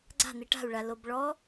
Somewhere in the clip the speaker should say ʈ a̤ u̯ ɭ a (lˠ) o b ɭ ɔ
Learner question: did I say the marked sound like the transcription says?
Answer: no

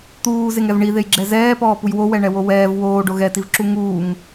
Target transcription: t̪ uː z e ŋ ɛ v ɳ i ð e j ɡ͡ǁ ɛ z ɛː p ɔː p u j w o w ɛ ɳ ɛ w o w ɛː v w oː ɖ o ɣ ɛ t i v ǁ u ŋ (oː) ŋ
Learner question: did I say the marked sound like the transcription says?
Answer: no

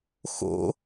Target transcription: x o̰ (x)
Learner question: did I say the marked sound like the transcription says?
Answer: no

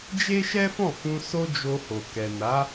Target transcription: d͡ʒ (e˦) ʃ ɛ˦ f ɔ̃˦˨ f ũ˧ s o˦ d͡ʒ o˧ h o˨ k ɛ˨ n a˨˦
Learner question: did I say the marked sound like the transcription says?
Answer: yes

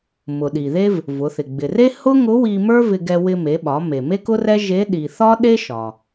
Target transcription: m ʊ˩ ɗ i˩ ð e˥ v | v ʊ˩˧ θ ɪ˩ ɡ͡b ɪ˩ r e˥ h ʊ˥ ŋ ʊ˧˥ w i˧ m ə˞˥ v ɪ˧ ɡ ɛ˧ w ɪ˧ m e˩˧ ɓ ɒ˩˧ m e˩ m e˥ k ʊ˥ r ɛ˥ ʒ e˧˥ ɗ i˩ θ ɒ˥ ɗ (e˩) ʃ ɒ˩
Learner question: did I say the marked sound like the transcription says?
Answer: no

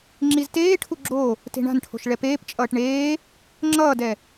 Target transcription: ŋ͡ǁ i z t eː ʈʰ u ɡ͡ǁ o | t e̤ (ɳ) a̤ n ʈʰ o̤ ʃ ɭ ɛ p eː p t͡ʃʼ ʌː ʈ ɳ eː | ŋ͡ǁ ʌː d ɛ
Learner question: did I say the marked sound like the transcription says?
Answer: yes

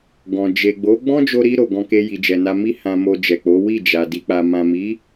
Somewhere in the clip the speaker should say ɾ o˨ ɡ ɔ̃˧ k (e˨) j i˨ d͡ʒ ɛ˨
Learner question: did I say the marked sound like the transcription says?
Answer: no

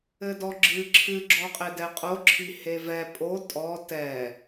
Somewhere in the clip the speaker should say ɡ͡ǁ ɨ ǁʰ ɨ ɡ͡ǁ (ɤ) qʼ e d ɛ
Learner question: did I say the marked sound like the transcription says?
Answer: no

